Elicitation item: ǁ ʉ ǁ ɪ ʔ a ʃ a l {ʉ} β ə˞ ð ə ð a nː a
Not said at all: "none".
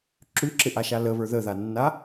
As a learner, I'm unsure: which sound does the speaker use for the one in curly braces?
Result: ə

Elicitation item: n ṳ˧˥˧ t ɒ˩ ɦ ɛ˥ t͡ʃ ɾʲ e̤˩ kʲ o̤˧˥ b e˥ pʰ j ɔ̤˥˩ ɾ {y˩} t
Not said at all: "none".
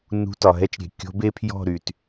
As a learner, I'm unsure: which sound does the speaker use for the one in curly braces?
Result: y˩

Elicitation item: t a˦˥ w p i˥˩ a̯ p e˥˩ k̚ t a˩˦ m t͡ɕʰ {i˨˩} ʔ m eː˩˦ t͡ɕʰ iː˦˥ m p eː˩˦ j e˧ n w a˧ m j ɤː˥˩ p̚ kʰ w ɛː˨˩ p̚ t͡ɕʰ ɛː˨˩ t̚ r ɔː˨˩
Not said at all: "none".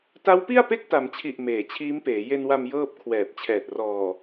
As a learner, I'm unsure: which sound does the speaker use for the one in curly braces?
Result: i˨˩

